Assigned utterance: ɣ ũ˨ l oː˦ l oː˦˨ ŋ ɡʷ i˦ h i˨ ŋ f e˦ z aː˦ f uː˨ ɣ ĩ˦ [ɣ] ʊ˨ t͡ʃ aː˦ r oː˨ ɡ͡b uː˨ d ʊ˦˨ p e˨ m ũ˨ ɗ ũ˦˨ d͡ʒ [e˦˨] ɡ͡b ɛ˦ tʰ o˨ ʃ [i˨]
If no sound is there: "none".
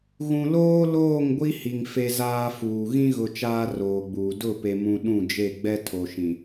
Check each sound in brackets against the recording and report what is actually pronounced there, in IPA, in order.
ɣ, e˦˨, ĩ˨

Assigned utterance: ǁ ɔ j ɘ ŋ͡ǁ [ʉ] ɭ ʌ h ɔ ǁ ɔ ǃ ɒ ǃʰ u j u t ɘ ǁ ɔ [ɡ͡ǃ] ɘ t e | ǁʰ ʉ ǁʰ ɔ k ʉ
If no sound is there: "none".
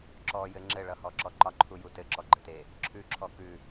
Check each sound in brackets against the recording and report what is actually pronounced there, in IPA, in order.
ɘ, ɡ͡ǃ

